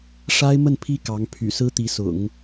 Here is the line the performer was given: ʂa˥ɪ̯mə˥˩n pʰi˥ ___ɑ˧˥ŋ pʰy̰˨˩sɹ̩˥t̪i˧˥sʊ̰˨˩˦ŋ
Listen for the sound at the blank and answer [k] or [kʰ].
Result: k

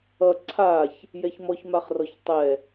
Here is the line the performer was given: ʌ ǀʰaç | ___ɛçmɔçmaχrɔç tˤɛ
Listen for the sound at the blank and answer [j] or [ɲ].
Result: j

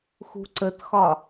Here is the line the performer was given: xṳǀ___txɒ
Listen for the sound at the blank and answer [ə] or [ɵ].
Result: ə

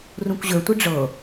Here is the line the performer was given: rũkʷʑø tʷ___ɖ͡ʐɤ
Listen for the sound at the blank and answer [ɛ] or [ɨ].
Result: ɨ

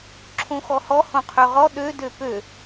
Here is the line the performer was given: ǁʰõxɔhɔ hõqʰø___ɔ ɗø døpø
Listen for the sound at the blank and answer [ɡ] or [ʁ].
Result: ʁ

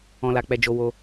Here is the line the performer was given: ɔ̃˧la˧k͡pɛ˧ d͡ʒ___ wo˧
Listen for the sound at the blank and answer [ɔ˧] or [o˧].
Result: o˧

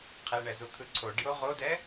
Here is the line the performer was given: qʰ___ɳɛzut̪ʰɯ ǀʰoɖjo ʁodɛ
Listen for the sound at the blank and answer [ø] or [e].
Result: e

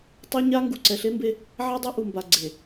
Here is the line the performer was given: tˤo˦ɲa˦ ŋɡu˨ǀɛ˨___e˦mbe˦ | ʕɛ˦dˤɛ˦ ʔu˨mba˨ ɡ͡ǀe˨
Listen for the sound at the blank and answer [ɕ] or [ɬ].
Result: ɬ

